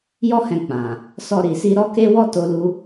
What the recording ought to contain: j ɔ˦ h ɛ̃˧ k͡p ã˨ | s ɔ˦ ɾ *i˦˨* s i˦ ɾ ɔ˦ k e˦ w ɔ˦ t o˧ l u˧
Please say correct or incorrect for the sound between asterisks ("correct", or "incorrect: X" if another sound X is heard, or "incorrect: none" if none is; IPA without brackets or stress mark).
incorrect: i˧